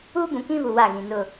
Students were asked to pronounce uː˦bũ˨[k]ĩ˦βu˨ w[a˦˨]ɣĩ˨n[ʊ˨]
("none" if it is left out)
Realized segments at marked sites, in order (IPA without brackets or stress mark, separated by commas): k, a˦˨, ʊ˦˨